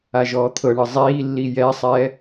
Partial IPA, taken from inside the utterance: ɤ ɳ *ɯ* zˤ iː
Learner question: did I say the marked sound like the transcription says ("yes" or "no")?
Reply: yes